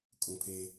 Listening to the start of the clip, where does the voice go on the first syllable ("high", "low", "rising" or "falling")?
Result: low